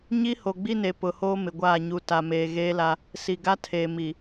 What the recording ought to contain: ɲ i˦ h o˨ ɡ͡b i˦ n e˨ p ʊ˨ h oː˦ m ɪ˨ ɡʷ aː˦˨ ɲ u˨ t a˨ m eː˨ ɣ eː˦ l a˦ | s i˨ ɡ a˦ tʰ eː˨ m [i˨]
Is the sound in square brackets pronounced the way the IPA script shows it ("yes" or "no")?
yes